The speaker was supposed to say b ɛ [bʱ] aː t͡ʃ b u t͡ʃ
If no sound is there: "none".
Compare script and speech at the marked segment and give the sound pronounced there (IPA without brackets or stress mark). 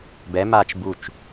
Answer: m